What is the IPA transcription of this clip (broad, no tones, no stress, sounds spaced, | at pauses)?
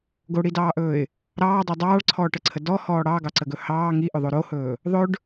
ɡ o ɽ i d ɑː ʔ ɵː ɪ̯ | ɾ ɑː dˤ o dˤ ɑː ɭ ǀʰ ɔː ʈ ə ǀʰ ə d ɔ h ɔː ɽ ɑ ɡ ɑ ǀ ə ɡ ɵ h ɑː ŋ i ʔ ʏ ðˤ o ɾ o h ɵː | ðˤ ɵ ɖ